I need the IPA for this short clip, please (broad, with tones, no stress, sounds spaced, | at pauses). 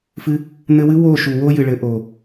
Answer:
f ɨ˧ | n̪ ɘ˧ w ɨ˦ w o˦˨ ʃ u˨ w o˦ j ɨ˨ ɭ ɘ˨˦ ʔ o˨